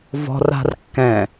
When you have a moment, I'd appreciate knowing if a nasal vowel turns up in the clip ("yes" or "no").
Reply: yes